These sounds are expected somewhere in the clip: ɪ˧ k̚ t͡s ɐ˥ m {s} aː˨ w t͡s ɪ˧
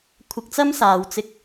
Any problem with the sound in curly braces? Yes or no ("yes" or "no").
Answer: no